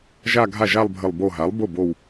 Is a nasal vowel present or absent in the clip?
absent